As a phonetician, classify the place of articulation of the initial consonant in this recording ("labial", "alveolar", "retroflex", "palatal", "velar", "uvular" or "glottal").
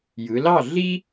palatal